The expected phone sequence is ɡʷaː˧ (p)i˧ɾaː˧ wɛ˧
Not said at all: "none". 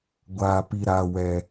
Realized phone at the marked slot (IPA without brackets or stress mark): p